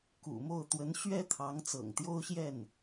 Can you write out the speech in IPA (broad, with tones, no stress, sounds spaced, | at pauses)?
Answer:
k ṵ˨˩ m o˥˩ ʊ̯ t̪ w ə˧˥ n ɕ ɥ ɛ˥ t̪ʰ ɑ˧˥ ŋ t͡s ɤ̰˨˩ ŋ t̪ j o˥ ʊ̯ ɕ j ɛ˥˩ n